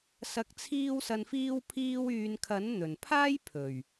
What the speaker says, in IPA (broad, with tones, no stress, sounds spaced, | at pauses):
s ɐ˨ k̚ t͡sʰ iː˧ w s ɐ˨ n f iː˧ w pʰ iː˧ w yː˨ n kʰ ɐ˨˥ n n̪ ɵ˨˩ n pʰ aː˥ j pʰ ɵ˨˩ ɥ